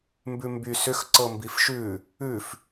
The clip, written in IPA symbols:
m b ʉ m b y s ʏ x ǀ ɤ m b i f ʃ ʉ | ʉ f

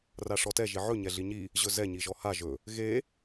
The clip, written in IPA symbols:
r a ʂ ɔ t ɛ ʒ i ʕ ɵ ɲ ɛ ɮ i ɲ i | ʑ ɵ z ɛ ɲ i ʒ ɔ h a ʒ ɵ | ɣ e

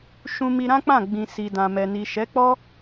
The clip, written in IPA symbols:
ʃ ũ˧ m i˧ ɾ ã˦ k͡p ã˦˨ ɡ͡b ĩ˨ s i˨ d ã˨ m ɛ˨ n i˨ ʃ ɛ˨˦ k͡p ɔ˦

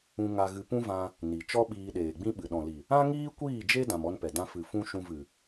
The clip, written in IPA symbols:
ũ˦ ŋ a˧ ɣ ɨ˧ p ũ˦ v ã˧ | n i˨ t͡ʃ ɔ˦ ɓ iː˧ ɗ eː˨ ɡ͡b ĩ˦ ɓ ɨ˨ ɗ ɔ̃˨ l i˨ | ã˦ ŋ iː˦ kʷ iː˦˨ d͡ʒ e˦ d ã˧ m ɔ˦ n p ɛ˨ d ã˧ f ɨ˨ f ũ˦ ʃ ũ˧ v ɨ˨

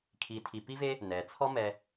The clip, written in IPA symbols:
kʰ i˨ tʰ i˨ p i˥ v e˥ | n ɛ˩ t͡sʰ ɔ˦ m ɛ˨

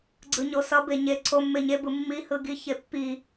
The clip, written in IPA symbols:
ɡ͡ǀ ɯ ɲ o s ʌ b e ɲ e ǀ o mː e ɲ e b ɯ mː i h ɯ ɡ i ç e pː i

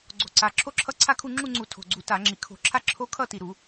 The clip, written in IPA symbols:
ɡ͡ǀ o̤˨˩ ǀ a˨˩ ǁʰ o˥˧ ǁʰ ʌ˦˥ ǀʰ a˥˧ kʰ u˥˧ ŋ͡ǁ u˥˧ ŋ͡ǀ u˧˩˧ tʰ o̤˨˩ ɡ͡ǀ u˧˩˧ t a˧˩˧ ŋ͡ǁ i˨˩ kʰ o̤˧˩˧ ǁʰ a˥˧ ǁʰ o˦˥ kʰ ʌ˥˧ t i˨˩ ɾ u˧˩˧

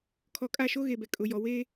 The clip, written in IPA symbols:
kʰ ɔ˨ kʼ a˦˨ ʃ o˦ ɣ e˨ b ɛ˨ kʼ ʊ˨ j ɔ˨ w e˦

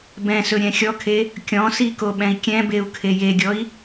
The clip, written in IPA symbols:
b ɛ̃ s ɵ ɾʲ ɛ̃ xʲ ɔ kʰ e | kʲ ɔ̃ s i k o ɓ ɛ̃ i̯ kʲ ɛ̃ b e u̯ kʰ e j e ɡʲ ɔ i̯

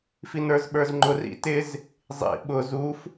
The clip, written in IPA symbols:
f i n ə˞ z ɓ ə˞ z ŋ͡ǃ ʊ r ḭ t ɪ z | zˤ ḭ ɓ ʊ z u f

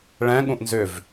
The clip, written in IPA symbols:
ɭ ɛ̃ ɠ ũ ʔ n z ʏ v

